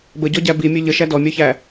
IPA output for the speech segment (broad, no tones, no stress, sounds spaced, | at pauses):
b ə ɟ ɔ ɟ æ b i mʲ ø ʎ ə ʃ æ d ɔ mʲ œ ç æ